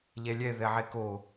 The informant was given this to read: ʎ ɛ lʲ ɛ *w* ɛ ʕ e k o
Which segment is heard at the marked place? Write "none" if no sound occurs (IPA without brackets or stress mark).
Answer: ð